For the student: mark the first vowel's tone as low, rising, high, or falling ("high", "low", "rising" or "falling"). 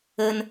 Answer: high